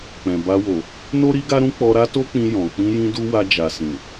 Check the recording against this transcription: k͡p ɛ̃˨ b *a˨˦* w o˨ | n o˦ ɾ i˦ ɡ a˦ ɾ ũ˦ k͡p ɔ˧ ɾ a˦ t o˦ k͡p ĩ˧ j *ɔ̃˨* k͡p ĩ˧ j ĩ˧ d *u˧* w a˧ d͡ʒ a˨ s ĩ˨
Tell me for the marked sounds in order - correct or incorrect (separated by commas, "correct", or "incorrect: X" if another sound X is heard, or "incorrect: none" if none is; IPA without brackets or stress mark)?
incorrect: a˧, correct, correct